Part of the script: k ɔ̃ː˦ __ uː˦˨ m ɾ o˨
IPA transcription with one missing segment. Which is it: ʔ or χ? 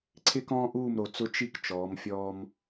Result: ʔ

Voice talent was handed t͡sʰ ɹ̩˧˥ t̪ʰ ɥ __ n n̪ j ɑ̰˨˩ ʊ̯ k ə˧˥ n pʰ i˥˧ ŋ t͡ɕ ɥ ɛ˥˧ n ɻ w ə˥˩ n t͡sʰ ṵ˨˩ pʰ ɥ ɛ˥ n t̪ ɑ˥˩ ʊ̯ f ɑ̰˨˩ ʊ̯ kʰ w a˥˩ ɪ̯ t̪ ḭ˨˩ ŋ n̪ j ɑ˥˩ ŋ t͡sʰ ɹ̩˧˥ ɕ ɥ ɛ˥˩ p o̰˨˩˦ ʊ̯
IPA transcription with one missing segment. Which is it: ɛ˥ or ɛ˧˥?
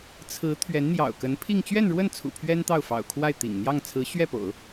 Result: ɛ˧˥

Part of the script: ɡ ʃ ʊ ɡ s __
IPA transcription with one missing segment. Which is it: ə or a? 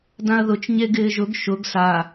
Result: a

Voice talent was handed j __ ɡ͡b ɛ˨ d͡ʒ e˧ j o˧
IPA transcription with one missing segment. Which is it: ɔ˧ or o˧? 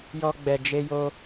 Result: ɔ˧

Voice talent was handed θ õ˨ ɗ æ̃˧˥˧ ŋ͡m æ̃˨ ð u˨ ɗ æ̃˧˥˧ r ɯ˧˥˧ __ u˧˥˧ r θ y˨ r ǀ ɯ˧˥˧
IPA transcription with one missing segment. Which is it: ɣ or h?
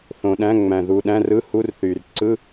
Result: h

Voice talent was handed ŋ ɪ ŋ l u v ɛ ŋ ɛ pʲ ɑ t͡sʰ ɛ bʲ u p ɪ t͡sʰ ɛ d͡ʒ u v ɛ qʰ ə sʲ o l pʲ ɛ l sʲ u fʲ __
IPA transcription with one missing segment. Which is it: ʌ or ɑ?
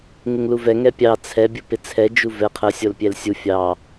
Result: ɑ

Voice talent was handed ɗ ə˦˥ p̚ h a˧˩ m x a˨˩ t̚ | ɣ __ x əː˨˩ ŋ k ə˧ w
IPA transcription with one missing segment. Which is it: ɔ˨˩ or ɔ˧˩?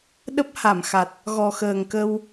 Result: ɔ˨˩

